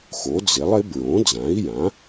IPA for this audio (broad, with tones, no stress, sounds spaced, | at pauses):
x o˩˥ d͡z ɪ˩˥ lˠ ɪ˩˥ b ɹ õ˩˥ d͡z ã˩˥ i̯ j ã˩˥